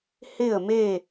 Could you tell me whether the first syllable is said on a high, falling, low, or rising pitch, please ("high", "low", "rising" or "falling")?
falling